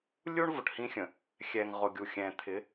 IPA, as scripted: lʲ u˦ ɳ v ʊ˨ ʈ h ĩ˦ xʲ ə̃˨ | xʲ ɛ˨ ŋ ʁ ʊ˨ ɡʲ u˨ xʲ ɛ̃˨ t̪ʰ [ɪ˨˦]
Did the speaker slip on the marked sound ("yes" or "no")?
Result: no